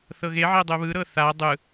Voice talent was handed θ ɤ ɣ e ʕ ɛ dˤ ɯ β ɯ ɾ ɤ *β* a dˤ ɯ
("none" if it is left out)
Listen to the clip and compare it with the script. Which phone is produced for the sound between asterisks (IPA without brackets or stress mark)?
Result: θ